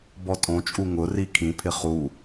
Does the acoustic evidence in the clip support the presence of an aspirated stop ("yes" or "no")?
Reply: yes